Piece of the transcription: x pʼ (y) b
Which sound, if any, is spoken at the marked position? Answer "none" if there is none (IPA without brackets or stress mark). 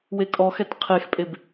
e